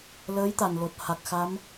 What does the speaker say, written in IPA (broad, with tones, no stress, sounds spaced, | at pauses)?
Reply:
l əː˧˥ j t̪ a˨˩ n l o˨˩ t̚ h a˨˩ k̚ x a˧˥ m